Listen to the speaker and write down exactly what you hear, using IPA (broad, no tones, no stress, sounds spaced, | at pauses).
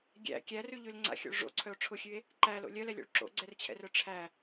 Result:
ɡʲ æ̰ kʲ æ r ʉ ʎ ʉ l ŋ͡ǀ a̰ xʲ o̰ ɭ ʐ o̰ ǀʰ œ o̯ ʈ͡ʂʰ ʊ xʲ ʉ e̯ | ǃ æ l o̰ lʲ œ l ɛ lʲ o̰ ɭ ǁ o̰ ɡ͡ǀ ɛ r t͡ɕʰ ɛ̰ r œ ʈ͡ʂʰ æ